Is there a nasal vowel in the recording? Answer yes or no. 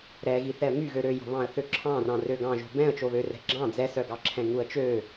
yes